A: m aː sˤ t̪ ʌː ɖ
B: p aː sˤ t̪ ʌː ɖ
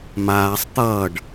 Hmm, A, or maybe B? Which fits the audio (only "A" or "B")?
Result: A